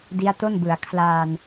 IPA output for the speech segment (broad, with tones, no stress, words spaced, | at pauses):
di˦˥a̯to˥˩nbɯ˩˦a̯ kʰlaː˧n